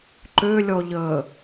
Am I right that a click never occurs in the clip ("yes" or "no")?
no